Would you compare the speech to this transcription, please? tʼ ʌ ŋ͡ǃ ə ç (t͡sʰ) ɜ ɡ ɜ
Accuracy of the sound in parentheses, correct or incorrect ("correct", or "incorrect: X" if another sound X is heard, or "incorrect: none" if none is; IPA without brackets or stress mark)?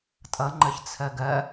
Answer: correct